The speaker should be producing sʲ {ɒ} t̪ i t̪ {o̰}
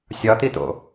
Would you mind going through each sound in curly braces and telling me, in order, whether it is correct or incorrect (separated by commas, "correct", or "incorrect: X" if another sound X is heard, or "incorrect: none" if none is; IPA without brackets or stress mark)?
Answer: correct, correct